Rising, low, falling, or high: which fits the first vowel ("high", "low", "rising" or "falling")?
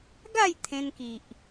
falling